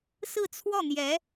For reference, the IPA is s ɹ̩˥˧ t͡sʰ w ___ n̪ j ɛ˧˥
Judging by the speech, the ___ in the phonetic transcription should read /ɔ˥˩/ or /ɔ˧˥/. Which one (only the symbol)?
ɔ˥˩